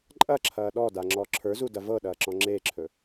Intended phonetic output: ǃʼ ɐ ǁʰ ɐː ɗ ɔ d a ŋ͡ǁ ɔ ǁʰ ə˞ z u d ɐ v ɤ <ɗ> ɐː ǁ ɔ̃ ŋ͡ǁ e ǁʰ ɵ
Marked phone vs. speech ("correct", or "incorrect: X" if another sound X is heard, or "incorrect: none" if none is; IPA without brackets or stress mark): correct